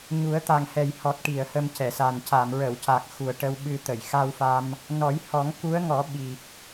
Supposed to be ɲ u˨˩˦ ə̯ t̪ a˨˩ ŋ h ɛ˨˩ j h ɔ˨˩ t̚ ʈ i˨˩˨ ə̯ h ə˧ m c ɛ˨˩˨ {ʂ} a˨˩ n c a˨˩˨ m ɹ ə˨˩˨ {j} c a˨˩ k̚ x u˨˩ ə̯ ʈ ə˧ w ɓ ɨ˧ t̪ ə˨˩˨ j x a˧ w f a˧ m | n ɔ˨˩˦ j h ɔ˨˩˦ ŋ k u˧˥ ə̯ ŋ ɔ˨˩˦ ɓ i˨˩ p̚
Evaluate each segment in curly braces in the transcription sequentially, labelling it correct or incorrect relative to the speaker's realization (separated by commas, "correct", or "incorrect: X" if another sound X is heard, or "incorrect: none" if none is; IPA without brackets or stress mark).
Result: incorrect: s, incorrect: w